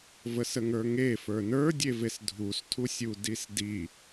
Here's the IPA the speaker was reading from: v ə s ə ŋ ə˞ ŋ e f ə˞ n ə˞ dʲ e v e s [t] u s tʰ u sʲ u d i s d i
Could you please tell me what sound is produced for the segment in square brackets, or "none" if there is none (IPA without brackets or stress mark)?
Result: dʱ